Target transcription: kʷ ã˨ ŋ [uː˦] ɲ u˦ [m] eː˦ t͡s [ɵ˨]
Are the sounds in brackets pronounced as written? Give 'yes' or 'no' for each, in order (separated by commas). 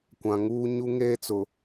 yes, no, no